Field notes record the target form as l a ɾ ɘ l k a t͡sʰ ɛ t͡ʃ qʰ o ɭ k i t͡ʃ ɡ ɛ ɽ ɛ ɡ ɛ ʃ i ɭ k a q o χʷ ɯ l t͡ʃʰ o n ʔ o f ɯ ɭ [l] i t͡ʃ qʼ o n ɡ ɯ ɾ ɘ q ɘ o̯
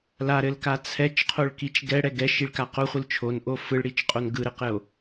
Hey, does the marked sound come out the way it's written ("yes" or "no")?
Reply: no